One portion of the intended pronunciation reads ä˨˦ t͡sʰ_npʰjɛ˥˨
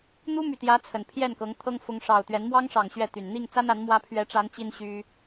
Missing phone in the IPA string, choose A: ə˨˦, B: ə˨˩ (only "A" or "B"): B